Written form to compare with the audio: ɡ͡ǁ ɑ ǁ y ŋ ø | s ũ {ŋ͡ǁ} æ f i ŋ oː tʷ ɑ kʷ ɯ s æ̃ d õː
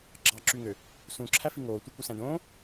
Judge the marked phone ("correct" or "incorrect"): incorrect